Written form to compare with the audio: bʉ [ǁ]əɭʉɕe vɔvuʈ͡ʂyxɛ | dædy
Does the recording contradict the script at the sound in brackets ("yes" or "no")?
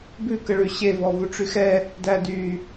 yes